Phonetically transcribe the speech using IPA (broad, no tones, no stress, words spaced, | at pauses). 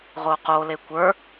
ʁoqo lekʷə˞